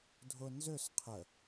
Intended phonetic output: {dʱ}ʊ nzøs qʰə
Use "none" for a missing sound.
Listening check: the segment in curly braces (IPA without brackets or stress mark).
dʱ